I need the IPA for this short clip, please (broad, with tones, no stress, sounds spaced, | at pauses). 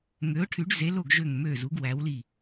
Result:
ŋ ø˩˧ ʊ̯ ʈʰ y˩˧ ɖ z e˩˧ l o˧˩ ɡ ʒ ø˧˩ ŋ m ø˧˩ z u˩˧ ɡ w æ˩˧ w l i˧˩